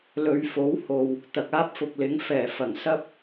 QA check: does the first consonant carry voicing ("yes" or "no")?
yes